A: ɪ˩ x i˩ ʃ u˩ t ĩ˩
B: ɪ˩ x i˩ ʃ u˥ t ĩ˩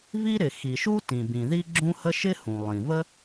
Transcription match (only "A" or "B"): B